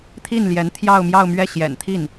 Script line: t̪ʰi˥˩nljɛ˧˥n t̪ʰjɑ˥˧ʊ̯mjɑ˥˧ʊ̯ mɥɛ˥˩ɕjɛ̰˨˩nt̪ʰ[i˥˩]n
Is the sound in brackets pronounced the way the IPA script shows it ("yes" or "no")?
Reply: yes